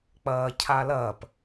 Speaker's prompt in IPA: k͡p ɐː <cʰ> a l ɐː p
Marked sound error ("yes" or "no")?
no